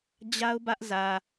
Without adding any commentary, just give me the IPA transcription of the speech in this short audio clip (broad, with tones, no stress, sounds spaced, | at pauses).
d͡ʑ a˦ ʊ̯ b ä˦ ʔ z ä˨